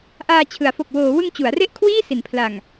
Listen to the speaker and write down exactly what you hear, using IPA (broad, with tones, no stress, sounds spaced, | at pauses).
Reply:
ʔ aː˧ t͡ɕʰ ɯ˩˦ a̯ f o˨˩ k̚ w oː˩˦ w ɯ˧ ŋ t͡ɕ u˩˦ a̯ r e˥˩ ʔ kʰ w iː˥˩ s i˩˦ n pʰ l a˨˩ ŋ